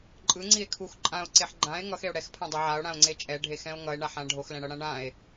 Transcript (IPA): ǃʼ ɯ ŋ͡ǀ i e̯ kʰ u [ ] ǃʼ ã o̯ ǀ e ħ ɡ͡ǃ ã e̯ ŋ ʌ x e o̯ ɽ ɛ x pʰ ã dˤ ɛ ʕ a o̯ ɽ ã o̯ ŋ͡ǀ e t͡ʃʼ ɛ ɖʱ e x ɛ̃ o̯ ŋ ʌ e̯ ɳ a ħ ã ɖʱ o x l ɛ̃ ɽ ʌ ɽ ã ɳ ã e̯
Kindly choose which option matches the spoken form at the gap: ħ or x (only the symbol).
x